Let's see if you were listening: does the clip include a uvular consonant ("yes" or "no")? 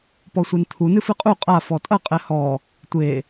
yes